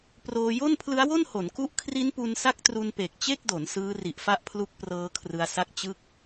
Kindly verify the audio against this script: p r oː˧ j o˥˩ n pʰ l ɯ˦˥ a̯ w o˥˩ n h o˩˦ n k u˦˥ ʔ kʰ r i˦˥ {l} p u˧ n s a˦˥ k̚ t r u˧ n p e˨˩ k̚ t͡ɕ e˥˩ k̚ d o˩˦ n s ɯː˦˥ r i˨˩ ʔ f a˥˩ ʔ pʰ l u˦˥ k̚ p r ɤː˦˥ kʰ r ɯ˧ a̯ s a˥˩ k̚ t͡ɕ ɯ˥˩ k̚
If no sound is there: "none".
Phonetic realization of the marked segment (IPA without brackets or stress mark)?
n